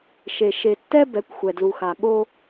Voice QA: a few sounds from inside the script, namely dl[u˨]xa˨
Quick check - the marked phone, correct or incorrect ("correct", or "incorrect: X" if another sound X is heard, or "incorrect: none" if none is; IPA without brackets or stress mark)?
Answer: correct